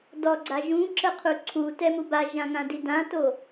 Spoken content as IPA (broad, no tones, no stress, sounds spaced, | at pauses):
d ɔ ɡ͡ǀ a ʒ ũ ǁ ə qʰ u ǀʰ u t ɛ m u b a ʒ ã ŋ ã d i d ã t o